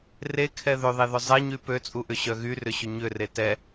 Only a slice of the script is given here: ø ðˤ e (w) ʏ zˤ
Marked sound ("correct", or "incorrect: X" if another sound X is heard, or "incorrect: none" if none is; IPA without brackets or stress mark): incorrect: ð